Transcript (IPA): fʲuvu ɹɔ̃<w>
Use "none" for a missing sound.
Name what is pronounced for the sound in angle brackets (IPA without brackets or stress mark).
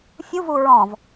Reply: v